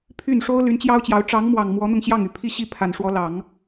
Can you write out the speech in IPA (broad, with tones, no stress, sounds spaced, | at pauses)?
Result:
pʰ y˥˩ n ʂ o˥ ʊ̯ l y˧˥ n t͡ɕ j ɑ˥ ʊ̯ t͡ɕ j ɑ˧˥ ʊ̯ ʈ͡ʂ ɑ˧˥ ŋ m w ɑ˨˩ ŋ m w ɔ˧˥ n̪ ʊ˧ ŋ ɕ j ɑ˥˩ ŋ y˨˩ pʰ i˥˧ ɕ i˥˩ pʰ a˨˩ n ʂ w ɔ˧˥ l ɑ˨˩˦ ŋ